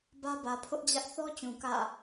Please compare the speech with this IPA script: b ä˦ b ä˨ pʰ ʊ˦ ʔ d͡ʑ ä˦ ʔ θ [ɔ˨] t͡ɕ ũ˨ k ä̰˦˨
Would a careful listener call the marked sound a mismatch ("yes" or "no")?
yes